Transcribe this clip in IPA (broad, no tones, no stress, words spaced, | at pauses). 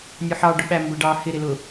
nʲʊħɑ ɖʊɓæmbʊ ɖɑ hɪ ɾɪlʊ